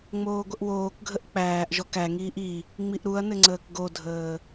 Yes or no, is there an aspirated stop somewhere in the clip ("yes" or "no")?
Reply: no